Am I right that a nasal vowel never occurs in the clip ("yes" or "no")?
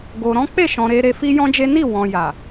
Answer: no